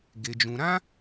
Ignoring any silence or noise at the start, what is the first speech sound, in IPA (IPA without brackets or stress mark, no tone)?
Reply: ɡ